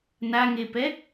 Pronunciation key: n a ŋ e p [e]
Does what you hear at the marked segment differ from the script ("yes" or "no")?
yes